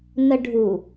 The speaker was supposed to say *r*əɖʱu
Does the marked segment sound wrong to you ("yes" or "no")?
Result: yes